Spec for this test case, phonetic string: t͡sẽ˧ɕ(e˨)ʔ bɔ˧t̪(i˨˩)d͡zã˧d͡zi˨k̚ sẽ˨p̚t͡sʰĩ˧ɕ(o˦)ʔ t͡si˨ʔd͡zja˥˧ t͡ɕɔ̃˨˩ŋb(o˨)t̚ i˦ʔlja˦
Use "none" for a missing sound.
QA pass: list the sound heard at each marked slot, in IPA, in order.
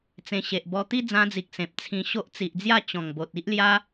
e˨, i˦, o˦, o˨

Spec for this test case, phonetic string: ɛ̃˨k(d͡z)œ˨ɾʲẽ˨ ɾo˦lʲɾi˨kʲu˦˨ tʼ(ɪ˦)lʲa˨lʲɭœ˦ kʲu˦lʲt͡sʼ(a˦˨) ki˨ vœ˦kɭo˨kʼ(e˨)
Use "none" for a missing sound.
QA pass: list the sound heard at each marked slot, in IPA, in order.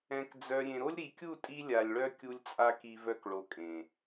d͡z, i˦, a˦, ẽ˨

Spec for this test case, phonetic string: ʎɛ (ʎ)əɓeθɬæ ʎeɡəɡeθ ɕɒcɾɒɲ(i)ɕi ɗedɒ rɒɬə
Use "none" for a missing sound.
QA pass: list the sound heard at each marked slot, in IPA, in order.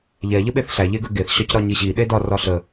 ʎ, i

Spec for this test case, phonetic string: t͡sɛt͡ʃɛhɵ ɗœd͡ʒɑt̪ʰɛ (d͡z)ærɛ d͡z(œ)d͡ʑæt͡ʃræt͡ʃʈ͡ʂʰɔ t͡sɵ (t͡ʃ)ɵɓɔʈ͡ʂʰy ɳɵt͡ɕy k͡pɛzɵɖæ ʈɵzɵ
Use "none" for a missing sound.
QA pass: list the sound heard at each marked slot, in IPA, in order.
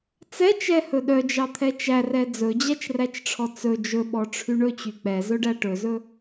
t͡ʃ, ɵ, d͡ʒ

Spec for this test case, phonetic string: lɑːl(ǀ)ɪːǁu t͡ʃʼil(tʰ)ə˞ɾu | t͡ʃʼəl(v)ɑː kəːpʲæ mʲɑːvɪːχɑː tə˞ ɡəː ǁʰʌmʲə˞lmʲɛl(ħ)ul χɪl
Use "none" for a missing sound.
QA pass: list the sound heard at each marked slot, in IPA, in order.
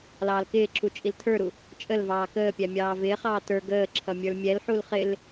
k, tʰ, v, ħ

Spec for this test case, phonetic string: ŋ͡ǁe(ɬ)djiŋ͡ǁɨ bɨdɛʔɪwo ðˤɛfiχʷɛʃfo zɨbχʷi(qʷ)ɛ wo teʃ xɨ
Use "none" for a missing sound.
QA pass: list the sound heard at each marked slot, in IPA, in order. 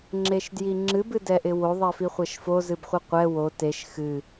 ʃ, qʷ

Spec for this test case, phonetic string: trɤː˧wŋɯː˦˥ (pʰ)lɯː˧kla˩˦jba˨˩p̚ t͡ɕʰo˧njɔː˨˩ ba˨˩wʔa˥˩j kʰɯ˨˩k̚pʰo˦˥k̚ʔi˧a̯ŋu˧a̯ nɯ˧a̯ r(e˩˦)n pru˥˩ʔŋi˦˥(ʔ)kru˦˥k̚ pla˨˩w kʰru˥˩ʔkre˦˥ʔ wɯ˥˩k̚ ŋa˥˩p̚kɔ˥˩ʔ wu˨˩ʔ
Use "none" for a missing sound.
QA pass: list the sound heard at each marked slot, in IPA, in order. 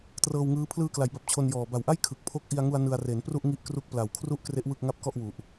pʰ, e˩˦, ʔ

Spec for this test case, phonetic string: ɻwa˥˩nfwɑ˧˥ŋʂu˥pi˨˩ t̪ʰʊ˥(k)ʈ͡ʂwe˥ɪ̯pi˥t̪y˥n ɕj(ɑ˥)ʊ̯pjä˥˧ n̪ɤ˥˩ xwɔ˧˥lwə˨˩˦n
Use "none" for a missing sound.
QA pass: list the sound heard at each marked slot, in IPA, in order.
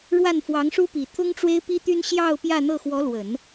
ŋ, ɑ˥˧

